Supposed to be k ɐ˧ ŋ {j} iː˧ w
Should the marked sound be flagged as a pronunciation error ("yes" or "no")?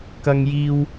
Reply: no